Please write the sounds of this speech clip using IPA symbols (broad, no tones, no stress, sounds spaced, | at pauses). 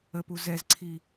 ə p u z ɛ z ǀʰ i